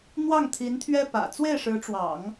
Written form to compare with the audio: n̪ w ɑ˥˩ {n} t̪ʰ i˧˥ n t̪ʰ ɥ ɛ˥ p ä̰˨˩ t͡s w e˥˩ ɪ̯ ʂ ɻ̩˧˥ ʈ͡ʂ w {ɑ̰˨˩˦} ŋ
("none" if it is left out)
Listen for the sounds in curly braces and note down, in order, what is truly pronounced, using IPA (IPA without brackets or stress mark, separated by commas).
ŋ, ɑ̰˨˩˦